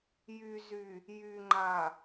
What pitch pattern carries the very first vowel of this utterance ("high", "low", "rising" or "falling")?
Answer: low